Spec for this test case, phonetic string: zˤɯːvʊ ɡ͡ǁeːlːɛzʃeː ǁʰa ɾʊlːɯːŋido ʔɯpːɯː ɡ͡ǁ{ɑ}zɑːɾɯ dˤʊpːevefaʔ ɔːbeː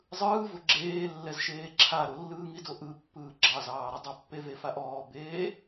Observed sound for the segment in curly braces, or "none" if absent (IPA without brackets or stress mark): ɑ